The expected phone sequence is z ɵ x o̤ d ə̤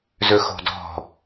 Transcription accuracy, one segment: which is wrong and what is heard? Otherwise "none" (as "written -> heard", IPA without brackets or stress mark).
ə̤ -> ɔ̤